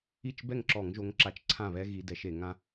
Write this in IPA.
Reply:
i˥˩ t͡ʃ b ɛ˥˩ ŋ ǁ ɔ˧˩˧ ŋ ʒ o˨˦ ŋ ǁ a˨˦ t͡ʃ ǀʰ ã˥˩ β ɛ˦ ɣ i˨˦ d ɛ˨˦ ʃ e˧˩˧ ŋ ã˦

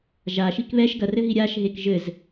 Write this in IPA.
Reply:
ʒ a ʃ i k β ɛ ʃ ɡ ɐ r ɘ ɦ i ɾʲ a ʃ ɦ e k ʒ ɘ z

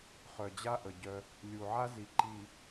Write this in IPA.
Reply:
χ œ˨ d͡ʑ a˦ ʔ ə˨ ɟ œ˦ | lʲ u˨ ʕ a˦ z i˨ ǃ i˨

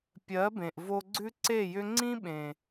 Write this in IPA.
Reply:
pʲ ɜ˨˦ b ẽ˨ ʔ v o˧ ɡ͡ǀ ʉ˦ ǀ e˦˨ j ʏ˦ ŋ͡ǀ ĩ˦ ɓ ẽ˨

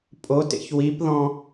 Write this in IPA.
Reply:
pʼ o t ḛ ç w i p ð ɔ̃

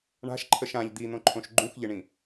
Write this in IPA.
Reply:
ɳ a̤ ʃ ǃʰ ə ʃ ã ʎ d̪ i n̪ õ ǃʰ õ ʃ ɡ͡ǃ ũ x ʎ ɪ ɳ ĩ

